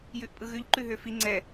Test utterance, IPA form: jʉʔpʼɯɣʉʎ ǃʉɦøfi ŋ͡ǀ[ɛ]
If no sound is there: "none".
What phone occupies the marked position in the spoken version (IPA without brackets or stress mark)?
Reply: ɛ